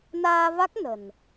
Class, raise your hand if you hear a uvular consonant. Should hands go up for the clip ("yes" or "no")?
no